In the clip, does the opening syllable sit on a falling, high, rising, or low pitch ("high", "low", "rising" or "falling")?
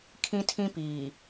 high